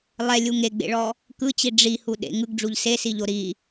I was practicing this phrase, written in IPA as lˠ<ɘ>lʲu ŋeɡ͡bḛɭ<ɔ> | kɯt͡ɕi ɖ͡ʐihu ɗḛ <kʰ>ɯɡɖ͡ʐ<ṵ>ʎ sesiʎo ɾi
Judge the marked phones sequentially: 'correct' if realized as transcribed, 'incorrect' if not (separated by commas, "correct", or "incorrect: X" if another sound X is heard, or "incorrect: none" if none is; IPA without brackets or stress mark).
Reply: incorrect: ɛ, correct, incorrect: ŋ, incorrect: u